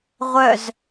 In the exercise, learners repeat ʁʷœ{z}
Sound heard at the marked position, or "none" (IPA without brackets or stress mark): z